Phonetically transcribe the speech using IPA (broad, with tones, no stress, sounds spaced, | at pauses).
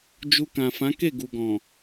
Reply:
d͡ʒ u˧ k ã˨ f ã˨˦ k e˦˨ ɡ u˨ ɡ ɔ̃˨